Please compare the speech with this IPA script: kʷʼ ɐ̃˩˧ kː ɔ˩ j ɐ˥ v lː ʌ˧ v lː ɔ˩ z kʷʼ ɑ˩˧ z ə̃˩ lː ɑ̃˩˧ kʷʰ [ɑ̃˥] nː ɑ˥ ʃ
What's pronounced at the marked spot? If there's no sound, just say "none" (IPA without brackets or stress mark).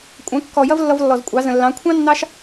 ɑ̃˥